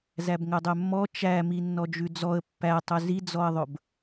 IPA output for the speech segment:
z æ b ŋ ɵ dˤ ø mː ɔ t͡ʃ æ m i nː ɔ d͡ʒ ʉ d͡z ɔ ə̯ pː æ tˤ ɵ z i d͡z ɔ ə̯ ðˤ ɵ b

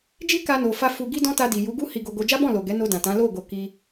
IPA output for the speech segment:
d͡ʒ i˦ k a˧ n o˨ f a˧ f u˦ ɡ i˦ d ɔ̃˦ t a˧ d i˨ j u˨˦ ɡ u˦ h i˧ ɡ o˧ ɡ o˧ d͡ʒ a˦ b ɔ̃˦˨ l o˨ ɡ ɛ˨˦ n o˧ d ã˨ t ã˨˦ l o˦˨ ɡ o˨ k i˧

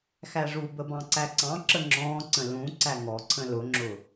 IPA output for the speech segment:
x æ ʐ u b ə b ɑ̃ ǀ æ ǀ ɑ̃ ǁ ə ŋ͡ǁ ɔ̃ː ǀ ə̃ l ũ ǀ æ ŋ ɔ ǀʰ ə̃ l ʊ ŋ͡ǁ ʊ

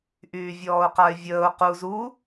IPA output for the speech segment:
ʔ yː vʲ ɔː ʊ̯ q a ɪ̯ vʲ əː ʊ̯ q u z u

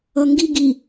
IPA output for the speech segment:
ʌ ŋ ɡ i ɡ i

